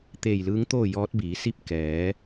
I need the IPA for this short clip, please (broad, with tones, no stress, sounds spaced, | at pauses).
t̪ eː˧˩ j l ɯː˧˥ ŋ t̪ oː˥˨ j ɔː˧˥ t̚ b iː˩˧ s i˥˨ p̚ k ɛː˩˧